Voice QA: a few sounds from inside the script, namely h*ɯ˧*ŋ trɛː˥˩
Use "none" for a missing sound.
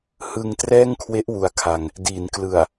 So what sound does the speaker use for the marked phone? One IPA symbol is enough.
ɯ˧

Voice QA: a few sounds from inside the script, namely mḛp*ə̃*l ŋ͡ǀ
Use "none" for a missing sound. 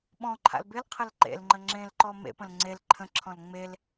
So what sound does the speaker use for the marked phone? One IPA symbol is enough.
ə̃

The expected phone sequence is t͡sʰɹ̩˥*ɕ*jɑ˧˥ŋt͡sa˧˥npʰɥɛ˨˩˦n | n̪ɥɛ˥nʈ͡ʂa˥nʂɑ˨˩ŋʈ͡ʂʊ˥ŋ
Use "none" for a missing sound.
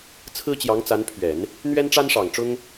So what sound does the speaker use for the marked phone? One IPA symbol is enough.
t͡ɕ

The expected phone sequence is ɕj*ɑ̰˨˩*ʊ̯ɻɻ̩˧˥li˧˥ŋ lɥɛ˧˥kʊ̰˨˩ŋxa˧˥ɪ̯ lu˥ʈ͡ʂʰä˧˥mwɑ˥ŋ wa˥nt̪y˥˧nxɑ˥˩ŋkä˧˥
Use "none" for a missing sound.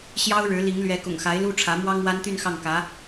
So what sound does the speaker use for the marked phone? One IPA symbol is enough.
ɑ˥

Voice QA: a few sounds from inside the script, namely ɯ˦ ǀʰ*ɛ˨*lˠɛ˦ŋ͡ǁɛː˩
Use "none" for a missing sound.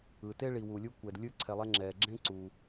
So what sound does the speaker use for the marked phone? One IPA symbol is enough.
ɛ˨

